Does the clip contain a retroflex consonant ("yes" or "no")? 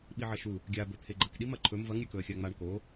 yes